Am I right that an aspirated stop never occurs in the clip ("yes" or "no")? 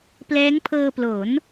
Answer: no